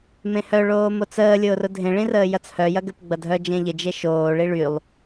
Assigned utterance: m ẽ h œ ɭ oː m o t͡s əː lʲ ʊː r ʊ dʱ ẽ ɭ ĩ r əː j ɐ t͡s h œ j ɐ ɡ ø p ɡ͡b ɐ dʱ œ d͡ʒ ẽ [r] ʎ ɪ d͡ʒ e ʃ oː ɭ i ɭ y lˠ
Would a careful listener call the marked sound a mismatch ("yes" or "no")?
yes